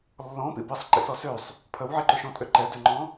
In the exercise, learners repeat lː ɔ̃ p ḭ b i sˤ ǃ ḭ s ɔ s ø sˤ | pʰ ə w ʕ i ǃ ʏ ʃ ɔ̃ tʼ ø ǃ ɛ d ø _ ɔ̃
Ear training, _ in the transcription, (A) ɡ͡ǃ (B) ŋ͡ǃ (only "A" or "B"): B